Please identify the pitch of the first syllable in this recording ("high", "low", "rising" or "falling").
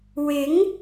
rising